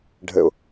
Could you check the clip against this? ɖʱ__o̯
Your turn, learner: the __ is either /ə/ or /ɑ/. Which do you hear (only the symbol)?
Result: ə